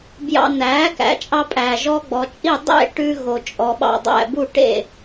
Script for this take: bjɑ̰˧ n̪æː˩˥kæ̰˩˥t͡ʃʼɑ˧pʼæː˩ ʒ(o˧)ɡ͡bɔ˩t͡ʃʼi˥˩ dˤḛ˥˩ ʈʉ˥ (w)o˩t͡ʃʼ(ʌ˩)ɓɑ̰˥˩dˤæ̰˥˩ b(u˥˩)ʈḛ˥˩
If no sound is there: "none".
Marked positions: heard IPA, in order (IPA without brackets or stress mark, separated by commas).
ɔ˧, ɣ, ɔ˩, u˥˩